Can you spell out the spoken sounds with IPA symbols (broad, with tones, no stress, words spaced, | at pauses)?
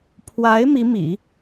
pʰwa˧˥ɪ̯ mi˧˥mḭ˨˩˦